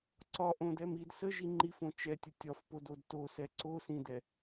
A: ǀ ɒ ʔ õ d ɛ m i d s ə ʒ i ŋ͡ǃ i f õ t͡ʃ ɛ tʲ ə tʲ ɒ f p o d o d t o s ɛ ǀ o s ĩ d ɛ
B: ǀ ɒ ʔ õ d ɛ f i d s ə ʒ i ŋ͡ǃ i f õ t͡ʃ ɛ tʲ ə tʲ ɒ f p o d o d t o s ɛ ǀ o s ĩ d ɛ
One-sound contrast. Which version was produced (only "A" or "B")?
A